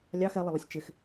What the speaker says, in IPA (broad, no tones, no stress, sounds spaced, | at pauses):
lʲ ɑ x ɛ lˠ ɪ lˠ ɪ sʲ t͡ʃ ɪ x